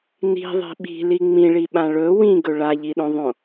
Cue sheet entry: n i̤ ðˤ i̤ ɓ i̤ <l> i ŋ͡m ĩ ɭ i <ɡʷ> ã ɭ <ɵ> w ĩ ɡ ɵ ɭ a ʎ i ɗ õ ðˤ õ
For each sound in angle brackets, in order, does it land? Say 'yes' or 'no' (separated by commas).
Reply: yes, no, yes